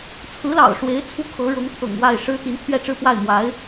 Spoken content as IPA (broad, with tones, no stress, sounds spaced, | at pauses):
t͡sʰ ɹ̩˧˥ l ɑ̰˨˩ ʊ̯ ʂ w e˧˥ ɪ̯ t͡sʰ u˥˩ kʰ ɤ˧˥ ɻ ɤ˧˥ ŋ pʰ ɤ̰˨˩ ŋ w a˥˩ ɪ̯ ʂ ɻ̩˥ t̪ i˧˥ n t̪ʰ ɥ ɛ˥˧ ʈ͡ʂ ɻ̩˥˧ p w a˥˩ ɪ̯ m w a˧˥ ɪ̯